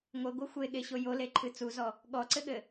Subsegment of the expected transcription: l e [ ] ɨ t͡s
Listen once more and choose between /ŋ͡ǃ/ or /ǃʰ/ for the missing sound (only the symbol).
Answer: ǃʰ